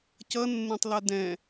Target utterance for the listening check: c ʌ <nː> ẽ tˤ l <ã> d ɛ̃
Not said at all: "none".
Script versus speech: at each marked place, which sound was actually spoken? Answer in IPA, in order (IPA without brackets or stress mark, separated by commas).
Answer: nː, a